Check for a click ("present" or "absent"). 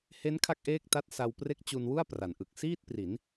absent